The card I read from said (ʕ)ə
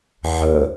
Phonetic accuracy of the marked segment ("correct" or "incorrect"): correct